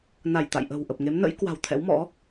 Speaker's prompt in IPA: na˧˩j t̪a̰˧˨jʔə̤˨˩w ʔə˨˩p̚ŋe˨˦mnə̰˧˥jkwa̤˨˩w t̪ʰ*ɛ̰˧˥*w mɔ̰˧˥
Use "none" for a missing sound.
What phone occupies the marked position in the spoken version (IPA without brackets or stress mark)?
ɛ̰˧˥